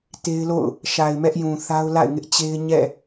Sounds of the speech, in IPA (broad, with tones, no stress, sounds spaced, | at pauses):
t e˦ ɪ̯ l o̰˦˨ ʊ̯ | ʃ a˨ ɪ̯ m ɛ˦ ʔ j ũ˨ θ a˦ ʊ̯ l a̰˦˨ ɪ̯ ŋ ɪ˦ ʔ t͡ɕ e˦ ɪ̯ ɲ ɛ̰˦˨